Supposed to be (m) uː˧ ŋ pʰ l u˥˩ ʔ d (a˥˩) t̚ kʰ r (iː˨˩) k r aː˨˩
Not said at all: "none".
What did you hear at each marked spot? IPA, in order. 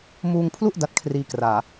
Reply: m, a˦˥, iː˧

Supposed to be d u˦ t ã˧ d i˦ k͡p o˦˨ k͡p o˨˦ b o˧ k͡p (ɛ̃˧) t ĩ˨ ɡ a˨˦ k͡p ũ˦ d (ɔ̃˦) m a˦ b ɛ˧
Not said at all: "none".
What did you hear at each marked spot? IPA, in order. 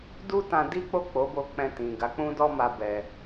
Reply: ɛ̃˧, ɔ˦

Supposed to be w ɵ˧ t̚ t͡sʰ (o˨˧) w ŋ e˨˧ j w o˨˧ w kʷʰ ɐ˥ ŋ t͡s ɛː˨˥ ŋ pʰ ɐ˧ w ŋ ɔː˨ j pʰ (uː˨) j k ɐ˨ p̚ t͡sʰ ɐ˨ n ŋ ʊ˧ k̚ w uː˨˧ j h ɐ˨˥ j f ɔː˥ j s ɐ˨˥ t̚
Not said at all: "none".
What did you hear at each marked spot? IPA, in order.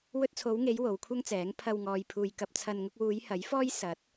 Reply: o˨˧, uː˨

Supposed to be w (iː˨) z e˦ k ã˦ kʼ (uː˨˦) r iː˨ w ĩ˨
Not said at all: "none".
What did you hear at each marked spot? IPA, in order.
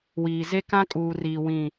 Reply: iː˨, uː˨

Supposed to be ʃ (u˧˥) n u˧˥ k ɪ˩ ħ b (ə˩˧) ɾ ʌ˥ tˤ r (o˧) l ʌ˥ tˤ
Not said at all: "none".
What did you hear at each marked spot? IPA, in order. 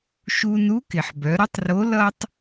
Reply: u˧, œ˩˧, o˧˥

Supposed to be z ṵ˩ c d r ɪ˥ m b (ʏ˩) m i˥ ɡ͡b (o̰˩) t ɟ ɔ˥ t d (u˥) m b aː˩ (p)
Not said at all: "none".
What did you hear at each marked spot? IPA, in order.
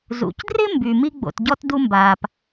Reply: y˩, o̰˩, u˥, p

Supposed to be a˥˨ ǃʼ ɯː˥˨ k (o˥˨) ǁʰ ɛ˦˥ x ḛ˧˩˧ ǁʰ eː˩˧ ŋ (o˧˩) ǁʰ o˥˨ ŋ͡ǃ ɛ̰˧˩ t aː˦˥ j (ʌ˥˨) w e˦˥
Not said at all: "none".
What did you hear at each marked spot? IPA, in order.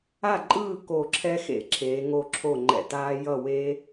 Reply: o˧˩, o˧˩, ʌ˥˨

